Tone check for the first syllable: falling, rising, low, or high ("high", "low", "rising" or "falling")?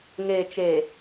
low